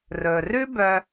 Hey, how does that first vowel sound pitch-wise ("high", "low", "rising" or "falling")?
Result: low